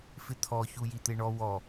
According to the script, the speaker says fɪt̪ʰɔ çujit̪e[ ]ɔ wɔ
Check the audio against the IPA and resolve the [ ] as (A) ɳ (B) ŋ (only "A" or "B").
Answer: A